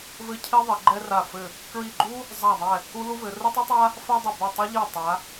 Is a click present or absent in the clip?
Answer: present